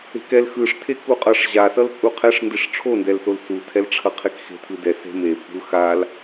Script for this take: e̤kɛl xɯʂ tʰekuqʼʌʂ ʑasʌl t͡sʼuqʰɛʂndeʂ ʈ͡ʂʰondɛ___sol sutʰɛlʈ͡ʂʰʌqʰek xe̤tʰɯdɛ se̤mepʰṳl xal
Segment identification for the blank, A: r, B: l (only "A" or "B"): B